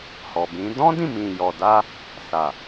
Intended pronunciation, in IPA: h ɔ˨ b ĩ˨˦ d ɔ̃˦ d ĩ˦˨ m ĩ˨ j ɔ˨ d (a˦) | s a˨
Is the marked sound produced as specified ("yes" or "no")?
no